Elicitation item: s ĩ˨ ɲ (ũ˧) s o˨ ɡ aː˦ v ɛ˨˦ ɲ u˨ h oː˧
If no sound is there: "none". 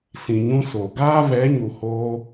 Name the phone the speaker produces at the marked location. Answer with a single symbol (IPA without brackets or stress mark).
ũ˧